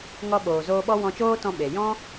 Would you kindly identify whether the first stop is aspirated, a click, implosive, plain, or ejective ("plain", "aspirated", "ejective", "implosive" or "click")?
implosive